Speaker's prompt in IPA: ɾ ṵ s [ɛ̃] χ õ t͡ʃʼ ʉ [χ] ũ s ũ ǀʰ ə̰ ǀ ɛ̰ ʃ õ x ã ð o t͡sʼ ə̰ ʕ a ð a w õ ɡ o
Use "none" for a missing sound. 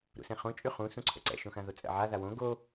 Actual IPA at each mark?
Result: ɛ̃, χ

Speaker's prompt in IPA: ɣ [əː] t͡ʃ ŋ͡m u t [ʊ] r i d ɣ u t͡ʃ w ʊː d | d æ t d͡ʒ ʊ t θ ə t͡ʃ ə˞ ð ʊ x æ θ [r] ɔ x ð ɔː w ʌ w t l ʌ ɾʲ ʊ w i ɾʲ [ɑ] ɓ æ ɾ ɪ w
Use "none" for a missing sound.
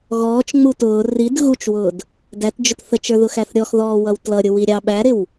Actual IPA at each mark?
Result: ɔː, ʊː, ɾʲ, ɑ

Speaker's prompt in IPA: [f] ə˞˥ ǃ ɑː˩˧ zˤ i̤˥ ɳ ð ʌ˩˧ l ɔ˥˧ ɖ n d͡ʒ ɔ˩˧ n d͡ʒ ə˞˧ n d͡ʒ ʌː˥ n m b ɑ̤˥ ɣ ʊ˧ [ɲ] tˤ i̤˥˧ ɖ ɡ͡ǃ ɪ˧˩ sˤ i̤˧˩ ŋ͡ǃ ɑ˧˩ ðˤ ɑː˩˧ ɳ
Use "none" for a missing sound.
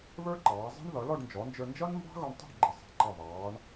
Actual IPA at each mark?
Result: β, ɳ

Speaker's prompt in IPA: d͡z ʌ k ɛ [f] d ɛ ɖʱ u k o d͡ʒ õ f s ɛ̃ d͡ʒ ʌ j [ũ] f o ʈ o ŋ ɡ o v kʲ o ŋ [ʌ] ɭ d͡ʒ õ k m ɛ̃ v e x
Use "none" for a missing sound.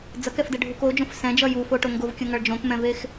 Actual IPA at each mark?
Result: f, u, ʌ

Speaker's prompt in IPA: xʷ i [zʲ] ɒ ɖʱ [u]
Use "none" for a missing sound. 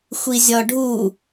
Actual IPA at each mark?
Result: zʲ, u

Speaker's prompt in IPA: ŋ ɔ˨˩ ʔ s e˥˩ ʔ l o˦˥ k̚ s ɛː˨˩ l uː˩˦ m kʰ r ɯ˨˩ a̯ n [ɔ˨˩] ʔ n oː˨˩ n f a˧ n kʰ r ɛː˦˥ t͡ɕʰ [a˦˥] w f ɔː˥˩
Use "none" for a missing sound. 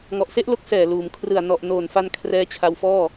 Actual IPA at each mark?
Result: ɔ˨˩, a˧

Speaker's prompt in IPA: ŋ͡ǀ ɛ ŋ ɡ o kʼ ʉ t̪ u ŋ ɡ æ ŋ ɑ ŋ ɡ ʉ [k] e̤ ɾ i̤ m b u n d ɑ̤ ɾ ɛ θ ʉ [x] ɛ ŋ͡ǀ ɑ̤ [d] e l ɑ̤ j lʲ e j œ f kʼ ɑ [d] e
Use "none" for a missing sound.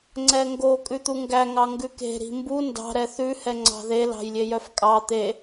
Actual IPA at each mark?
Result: k, h, ð, t̪

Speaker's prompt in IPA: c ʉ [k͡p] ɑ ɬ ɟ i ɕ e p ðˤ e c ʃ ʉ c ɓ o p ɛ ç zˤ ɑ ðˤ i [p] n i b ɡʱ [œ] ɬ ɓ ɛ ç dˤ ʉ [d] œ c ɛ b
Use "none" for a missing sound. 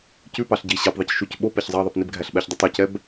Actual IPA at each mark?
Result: p, p, æ, tˤ

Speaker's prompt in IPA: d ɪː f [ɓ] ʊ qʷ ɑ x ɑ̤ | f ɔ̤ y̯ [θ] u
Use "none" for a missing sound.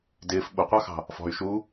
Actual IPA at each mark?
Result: ɓ, ʃ

